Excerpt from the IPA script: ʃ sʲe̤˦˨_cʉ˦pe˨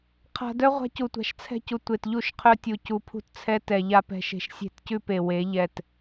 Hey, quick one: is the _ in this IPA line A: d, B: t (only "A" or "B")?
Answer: B